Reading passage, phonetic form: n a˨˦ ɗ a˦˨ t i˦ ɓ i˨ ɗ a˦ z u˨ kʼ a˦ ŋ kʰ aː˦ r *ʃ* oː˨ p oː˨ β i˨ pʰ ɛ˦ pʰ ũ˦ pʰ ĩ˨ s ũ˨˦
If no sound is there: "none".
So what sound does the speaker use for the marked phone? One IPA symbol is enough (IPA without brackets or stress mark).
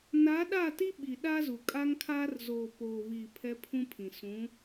z